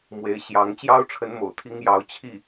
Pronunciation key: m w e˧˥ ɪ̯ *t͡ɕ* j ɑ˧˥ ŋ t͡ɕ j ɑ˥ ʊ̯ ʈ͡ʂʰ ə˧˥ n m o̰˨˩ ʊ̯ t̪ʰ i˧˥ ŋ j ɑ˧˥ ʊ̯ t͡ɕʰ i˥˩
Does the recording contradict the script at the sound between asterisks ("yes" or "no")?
yes